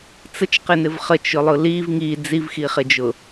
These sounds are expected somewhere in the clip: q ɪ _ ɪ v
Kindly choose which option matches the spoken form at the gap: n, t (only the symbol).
n